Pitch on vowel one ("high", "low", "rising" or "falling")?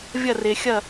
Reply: falling